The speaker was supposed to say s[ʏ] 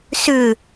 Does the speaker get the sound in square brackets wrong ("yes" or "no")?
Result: no